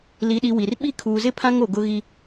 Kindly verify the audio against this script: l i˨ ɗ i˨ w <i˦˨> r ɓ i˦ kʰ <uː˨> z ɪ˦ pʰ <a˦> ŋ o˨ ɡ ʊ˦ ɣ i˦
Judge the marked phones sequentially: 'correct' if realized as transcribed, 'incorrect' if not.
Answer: incorrect, correct, incorrect

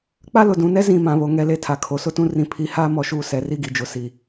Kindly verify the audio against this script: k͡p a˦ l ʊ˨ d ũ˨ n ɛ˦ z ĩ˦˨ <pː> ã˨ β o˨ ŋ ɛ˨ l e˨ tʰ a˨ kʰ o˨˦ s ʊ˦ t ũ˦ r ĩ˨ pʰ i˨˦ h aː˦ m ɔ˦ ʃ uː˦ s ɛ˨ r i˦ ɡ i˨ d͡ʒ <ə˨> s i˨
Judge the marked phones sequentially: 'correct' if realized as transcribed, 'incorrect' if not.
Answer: incorrect, incorrect

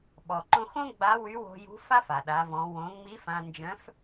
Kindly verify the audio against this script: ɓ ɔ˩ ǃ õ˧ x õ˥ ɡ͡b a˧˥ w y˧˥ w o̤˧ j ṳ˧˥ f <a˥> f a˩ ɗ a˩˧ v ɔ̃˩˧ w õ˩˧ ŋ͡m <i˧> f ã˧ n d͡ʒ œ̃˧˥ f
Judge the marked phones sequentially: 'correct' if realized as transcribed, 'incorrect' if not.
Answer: correct, incorrect

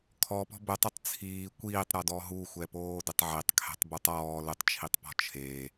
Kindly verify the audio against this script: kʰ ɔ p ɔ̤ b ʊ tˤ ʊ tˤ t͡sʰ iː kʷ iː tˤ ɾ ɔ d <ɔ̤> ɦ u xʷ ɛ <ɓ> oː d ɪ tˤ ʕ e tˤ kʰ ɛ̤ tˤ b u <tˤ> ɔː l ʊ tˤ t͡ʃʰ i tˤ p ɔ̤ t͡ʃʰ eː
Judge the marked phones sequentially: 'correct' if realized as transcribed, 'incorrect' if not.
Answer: incorrect, incorrect, correct

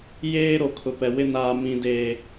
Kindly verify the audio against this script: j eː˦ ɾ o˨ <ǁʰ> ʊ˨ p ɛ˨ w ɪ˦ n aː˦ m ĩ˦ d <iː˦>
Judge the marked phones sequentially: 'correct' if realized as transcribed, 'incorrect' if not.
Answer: incorrect, incorrect

